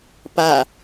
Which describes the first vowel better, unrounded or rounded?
unrounded